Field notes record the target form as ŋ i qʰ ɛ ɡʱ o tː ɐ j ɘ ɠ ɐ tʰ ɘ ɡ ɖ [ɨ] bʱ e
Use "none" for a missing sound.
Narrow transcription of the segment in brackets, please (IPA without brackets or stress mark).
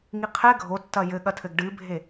ɨ